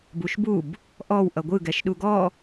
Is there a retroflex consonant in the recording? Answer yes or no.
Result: no